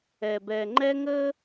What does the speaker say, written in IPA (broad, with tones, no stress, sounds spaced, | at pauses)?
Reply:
ɛ˨ b ɛ˨ ŋ͡ǃ ɛ˦ ŋ ə˦